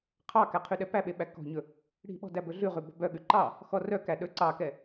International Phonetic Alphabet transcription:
qʰɑkæ qʰyɗɛpæɓe ɓækɔ̤ɲɵ | ɽi̤ɓɔ̤ dæbɵɮʉʁʉ bɔ̤bœɠʉ ǃɑ | xɔrœkæ ɗɵǀɑkɛ

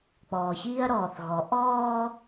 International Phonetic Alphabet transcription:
k͡pɔː˨çiː˦ɐ̯ɾɔː˨θɣɔ˨˦ ʔɔː˦

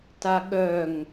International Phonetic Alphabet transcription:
taɠœŋ

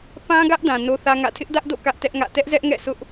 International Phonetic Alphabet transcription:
pã˦ɡä˦ʔ dã˨no˦θä˦ŋä̰˦˨ tʰɪ˦ʔdä˦ʔdo̰˦˨ kä˦ʔtɛ˦ʔŋä̰˦˨ tɛ˦ʔzɛ˦ʔŋɛ̰˦˨sʰʊ˦ʔ

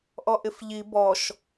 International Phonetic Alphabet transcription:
ʔɔʔɪfʎi bɔʃ

